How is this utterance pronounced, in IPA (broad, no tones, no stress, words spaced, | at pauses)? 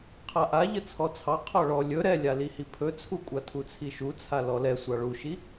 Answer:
qʰaʔa ʎət͡sʰɔt͡sʰɑ qʰɔɭɔ lʲɵ ɾɛlʲalihi pʰɵt͡sʰukʷʼa tʰut͡sʰiʃut͡sʰa lɔlɛ sʷɑɭuʃi